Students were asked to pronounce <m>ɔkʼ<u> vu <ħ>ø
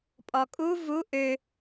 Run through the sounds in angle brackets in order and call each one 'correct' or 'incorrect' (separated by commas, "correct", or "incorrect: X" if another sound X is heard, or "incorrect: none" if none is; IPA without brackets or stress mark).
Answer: incorrect: pʼ, correct, incorrect: ʔ